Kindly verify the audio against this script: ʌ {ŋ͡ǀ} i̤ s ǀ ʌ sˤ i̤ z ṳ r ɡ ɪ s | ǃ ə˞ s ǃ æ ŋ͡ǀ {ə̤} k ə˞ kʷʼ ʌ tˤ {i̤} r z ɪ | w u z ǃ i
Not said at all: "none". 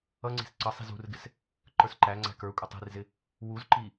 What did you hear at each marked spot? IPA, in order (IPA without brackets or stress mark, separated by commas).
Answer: ŋ͡ǀ, æ̤, i̤